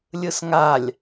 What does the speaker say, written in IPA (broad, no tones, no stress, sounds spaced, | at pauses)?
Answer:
lʲ ɯ s ŋ a lʲ